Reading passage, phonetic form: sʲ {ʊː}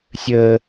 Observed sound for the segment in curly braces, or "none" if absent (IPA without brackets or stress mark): əː